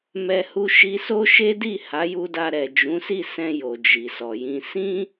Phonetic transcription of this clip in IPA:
m ɛ˧ h u˧ ʃ i˧ s o˦ ʃ e˦ d i˦˨ h a˨˦ j u˧ d a˧ ɾ ɛ˨ d͡ʒ ũ˨˦ s i˦˨ s ɛ̃˧ j o˨ d͡ʒ i˨ s ɔ˨ j ĩ˧ s ĩ˦

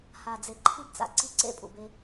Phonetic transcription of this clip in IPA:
h a˨ d͡z e˨ ǃʰ i˦ b t͡s a̰˨ ǀ i˦˨ ǀ ḛ˦ pʼ ṵ˨ b e˦

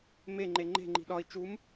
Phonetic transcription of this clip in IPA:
m e ŋ͡ǃ e ŋ͡ǃ e̤ ŋ͡ǃ i̤ ɗ ɒ i̯ t͡ʃ u m

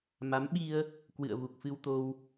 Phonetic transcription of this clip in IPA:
m a˨˦ m ɓ i˧ ə̯ | k w ɨ̰˧˨ ə̯ v u˨˩ k̚ f ɨ˧ w t̪ o˧ w

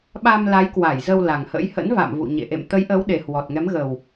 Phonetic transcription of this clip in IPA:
ɓ a˧ m l a˨˦ j k w a˧˩ j z ə˧ w l a˨˩ ŋ h ə̰˧˥ j h ə̰˧˥ n v a̰˧˨ m v ṵ˧˨ ɲ ḛ˧˨ ʔ ḛ˧˨ m t̪ ə˨˦ j ʔ ə˨˦ w ɗ e˨˩ h w ɔ˨˩ t̚ ŋ ɛ˨˦ m ɣ ə˨˩ w

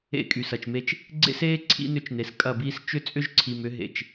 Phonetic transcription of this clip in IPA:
ḛ˦˨ kʼ y˨ s ɐ˨ t͡ʃ m e˦ t͡ʃ | ɡ͡ǀ ḛ˦ s eː˦ ǀʰ ḭ˦ n ʏ˦ t͡ʃ n e˨ s kʼ ɐ˦˨ b iː˦ s t͡ʃ ʏ˦ t͡sʼ ʏ˦ ʒ ǀʰ i˨ m ʏ˨˦ ɦ ḛ˨ t͡ʃ

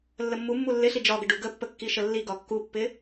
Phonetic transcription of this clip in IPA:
lː ə mː u mː u lː ɪ ɬ i d͡ʒ ɒ ɡ ə ɖ u ɡ ə pː ə kː i ʃ ə lː i ɡ ɒ kː u pː ɪ

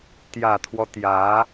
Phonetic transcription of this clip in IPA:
t̪ j ä˨˩ t̪ʰ w ɔ˦ t̪ j ä˧˥

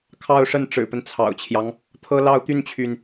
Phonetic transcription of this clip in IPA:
kʰ ɑ˥˧ ʊ̯ ʂ ə˥˩ n ʈ͡ʂ ɻ̩˨˩ p ə˦ n t͡sʰ ɑ̰˨˩ ʊ̯ t͡ɕʰ j ɑ˦ ŋ | t̪ʰ ɤ˥ l ɑ˥˧ ʊ̯ t̪ y˥˩ n t͡ɕʰ y˩ n

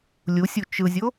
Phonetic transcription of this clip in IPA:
lʲ u sʲ u t͡ʃ ɯ zʲ o

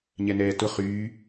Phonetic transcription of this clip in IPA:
ɲ ɛ n ɛː t ʊ χ yː

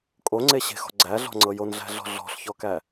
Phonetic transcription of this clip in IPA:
kʼ o ŋ͡ǀ e ɕ e̤ x ɔ̤ ɡ͡ǀ æ ɮ ɔ̤ ŋ͡ǀ ɤ j o n ɮ æ̤ ɮ ɔ̤ ɮ ɔ̤ ɬ ç ɔ k æ

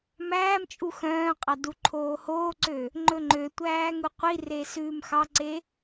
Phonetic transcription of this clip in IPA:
m æː m t͡ʃʼ u x œ̃ː qʼ ɑ d u ǃʰ oː h oː ǀ ø | ŋ͡ǃ ɵ ŋ͡ǃ ø tʷ æː ŋ u qʷ i r e s ʉː m x ɑ ǀ e

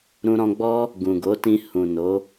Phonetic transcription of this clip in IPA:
ɾ ũ˧ ɾ ɔ̃˧ ɡ͡b ɔ˦ | ɡ ũ˨ ɡ o˨˦ t ĩ˧ h ũ˨ n o˨˦

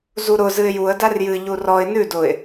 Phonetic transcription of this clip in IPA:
z u ɾ ʊ z ɨ ɪ̯ j u ə̯ d a r j ɨ ʎ u r ɔ ɪ̯ n ʉ d ʊ ɪ̯

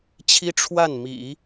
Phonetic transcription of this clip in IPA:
t͡ɕʰ i˥ ʈ͡ʂʰ w a˥˩ n m ḭ˨˩˦

